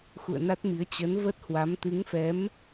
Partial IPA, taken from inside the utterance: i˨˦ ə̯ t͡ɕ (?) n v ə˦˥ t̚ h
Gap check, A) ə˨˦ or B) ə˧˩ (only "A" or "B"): A